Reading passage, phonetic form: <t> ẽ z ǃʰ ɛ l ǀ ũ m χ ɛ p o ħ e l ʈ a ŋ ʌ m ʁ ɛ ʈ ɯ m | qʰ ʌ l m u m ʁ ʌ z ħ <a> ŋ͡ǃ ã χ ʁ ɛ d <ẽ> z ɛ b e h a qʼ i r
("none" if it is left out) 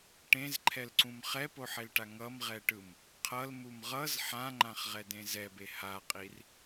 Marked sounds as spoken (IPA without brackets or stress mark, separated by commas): ʈ, ã, ẽ